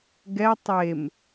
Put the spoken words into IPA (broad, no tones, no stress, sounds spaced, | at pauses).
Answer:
ɡ ɛ tˤ e m